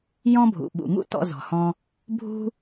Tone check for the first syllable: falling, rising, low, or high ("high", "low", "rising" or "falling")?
high